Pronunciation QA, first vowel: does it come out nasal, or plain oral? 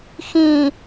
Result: nasal